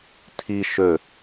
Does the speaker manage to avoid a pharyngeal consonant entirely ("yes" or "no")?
yes